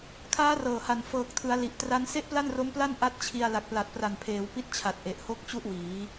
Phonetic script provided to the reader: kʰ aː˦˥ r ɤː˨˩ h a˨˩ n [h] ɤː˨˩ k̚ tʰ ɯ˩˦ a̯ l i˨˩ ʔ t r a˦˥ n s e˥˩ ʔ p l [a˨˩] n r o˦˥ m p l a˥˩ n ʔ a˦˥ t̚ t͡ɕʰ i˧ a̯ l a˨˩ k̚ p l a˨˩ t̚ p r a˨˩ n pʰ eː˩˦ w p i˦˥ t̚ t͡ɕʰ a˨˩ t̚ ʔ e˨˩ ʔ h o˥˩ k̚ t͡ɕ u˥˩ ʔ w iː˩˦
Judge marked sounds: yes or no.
no, no

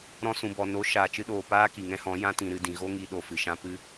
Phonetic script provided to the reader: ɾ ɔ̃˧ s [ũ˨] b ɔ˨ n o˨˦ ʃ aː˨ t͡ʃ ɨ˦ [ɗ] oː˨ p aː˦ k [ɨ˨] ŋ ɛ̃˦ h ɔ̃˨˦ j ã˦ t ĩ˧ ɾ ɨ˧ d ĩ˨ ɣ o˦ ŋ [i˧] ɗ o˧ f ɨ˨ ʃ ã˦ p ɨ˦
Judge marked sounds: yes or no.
yes, yes, no, yes

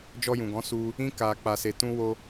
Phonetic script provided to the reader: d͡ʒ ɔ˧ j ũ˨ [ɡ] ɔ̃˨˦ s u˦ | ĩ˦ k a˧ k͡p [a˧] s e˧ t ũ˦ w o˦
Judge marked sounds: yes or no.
yes, yes

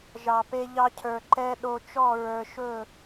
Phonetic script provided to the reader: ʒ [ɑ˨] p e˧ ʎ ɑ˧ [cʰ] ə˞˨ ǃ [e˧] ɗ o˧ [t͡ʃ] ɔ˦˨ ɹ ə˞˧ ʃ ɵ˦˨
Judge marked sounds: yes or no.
yes, yes, no, yes

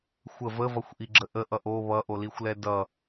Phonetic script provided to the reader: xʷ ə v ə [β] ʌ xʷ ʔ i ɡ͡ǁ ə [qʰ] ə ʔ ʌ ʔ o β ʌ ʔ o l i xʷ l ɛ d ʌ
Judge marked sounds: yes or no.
no, no

